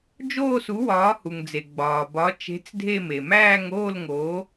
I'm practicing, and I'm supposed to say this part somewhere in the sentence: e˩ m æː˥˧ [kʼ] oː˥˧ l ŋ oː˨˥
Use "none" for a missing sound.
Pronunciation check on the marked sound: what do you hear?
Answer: ŋ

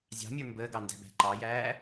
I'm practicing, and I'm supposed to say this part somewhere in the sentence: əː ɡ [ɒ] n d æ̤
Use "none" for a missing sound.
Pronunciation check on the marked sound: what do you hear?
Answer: ɑ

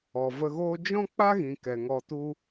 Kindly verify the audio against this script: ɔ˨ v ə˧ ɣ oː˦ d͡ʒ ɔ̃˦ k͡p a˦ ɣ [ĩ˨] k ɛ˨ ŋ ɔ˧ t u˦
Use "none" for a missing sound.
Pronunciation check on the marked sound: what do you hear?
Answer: ĩ˨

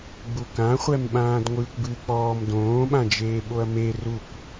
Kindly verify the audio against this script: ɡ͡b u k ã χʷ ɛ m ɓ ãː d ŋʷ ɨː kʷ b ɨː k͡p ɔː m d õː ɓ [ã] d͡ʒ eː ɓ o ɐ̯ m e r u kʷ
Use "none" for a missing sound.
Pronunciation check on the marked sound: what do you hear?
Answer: ã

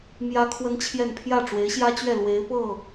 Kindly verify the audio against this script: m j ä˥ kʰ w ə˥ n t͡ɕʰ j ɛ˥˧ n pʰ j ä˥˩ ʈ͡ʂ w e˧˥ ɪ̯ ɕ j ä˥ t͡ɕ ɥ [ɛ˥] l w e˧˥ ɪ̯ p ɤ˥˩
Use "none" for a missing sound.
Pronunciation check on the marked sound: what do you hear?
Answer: ɛ˥˩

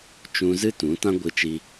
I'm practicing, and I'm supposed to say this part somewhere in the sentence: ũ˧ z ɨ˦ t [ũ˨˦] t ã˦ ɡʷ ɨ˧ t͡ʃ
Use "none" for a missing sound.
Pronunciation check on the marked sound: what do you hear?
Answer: ũ˨˦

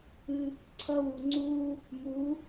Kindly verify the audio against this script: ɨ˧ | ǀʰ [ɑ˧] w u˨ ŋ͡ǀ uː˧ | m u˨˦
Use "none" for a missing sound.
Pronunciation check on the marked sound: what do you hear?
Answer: ʌ˧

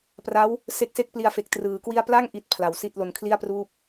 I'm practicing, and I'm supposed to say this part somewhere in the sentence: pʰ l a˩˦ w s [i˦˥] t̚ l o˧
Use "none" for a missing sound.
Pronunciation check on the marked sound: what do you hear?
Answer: i˥˩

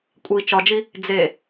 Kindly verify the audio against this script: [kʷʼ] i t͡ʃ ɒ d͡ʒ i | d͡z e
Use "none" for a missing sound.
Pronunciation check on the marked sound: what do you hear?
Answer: kʷʼ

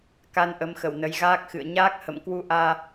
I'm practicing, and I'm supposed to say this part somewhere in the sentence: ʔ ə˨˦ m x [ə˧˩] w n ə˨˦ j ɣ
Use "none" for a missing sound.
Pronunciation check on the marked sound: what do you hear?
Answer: ə˧˩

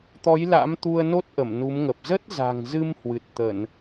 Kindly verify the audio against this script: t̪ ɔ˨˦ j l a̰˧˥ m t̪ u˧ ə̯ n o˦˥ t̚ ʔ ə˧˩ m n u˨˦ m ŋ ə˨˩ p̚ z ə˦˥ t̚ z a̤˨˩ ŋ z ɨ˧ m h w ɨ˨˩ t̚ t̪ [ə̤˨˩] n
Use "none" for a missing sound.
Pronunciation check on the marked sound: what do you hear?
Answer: ə˧˩˨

